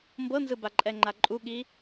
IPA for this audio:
mbɤnzɯba ǃʼɛŋ͡ǃaǃʼuɠi

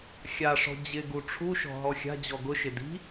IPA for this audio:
xʲaʂɔ̤ d͡ʑɪɡu ʈ͡ʂʰuʃɔ̤ ɦɔxʲa̤d͡ʑɔ ɡʊʃɪ di̤

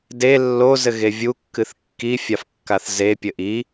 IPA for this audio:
de lːo zɘɣevʲu kːɨθkːi fʲafkːaθze pʲɘʔi

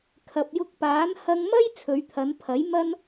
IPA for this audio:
kʰɐ˨p̚jʊ˧k̚paː˨˥n hɐ˧ŋmɐ˥j t͡sʰɵ˨˧ɥt̪ʰɐ˨˧npʰɐ˨˥j mɐ˧n

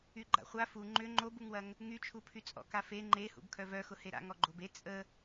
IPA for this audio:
yɡ͡ǃa̰χʷa fu ŋ͡ǃʏ ŋ͡ǃobuŋwɐŋ | ŋyt͡ʃʰupʰy t͡sʼɔ̰kafe ŋ͡ǃehṵb kʰœvœxʊ heɾa̰ŋ ɔɡ͡ǃobe t͡sʼə

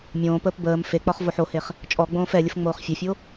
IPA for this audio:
mʲõːpəːp bəːm fek͡pɒχ voħoheχ | t͡ʃʼɔɡ͡bõːf ɛlʲəf ŋ͡moːχfʲɛfʲo

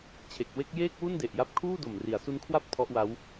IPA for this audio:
t͡ɕʰe˨˩k̚ we˦˥k̚ jeː˥˩k̚ wu˥˩nde˨˩ʔja˦˥p̚ kʰuː˥˩do˨˩m ri˩˦a̯su˦˥nkʰwa˥˩p̚ tʰɔ˦˥ʔwa˦˥w

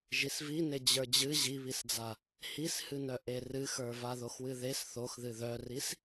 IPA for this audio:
ʒisvine d͡ʑə˞d͡ʑɨ ʑiβisd͡za | hishɨnœ ʔerɨxə˞ vaðoxwɨðes θoxðɨ ðœris

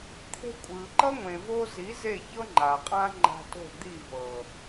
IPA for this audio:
t̪ʰe̤˧kʷʼɯː˨ǃʌ˦ ŋʷẽ˨vo˧ zi˨˦ ze˦˨çɤ˦ ŋ͡ǃa˨qʼã˦ ŋ͡ǃa̤˧to̤˦˨ d̪i˦˨ vɤ˨

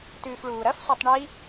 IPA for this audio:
tʉːfɭuːɾɐfsʷitˤ ɳi

